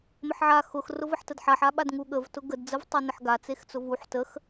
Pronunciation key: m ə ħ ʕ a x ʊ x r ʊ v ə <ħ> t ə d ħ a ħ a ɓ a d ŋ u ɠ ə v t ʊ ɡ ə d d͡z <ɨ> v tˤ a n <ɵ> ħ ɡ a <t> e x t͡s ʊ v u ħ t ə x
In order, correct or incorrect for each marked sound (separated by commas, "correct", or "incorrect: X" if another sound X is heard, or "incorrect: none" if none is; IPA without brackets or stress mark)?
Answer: correct, incorrect: ə, incorrect: ə, incorrect: t͡s